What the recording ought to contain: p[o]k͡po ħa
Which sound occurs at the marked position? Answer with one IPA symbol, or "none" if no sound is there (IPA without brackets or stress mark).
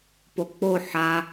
o